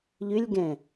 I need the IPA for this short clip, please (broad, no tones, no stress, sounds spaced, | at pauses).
ʎ ʉ lʲ ɡ ɛ̃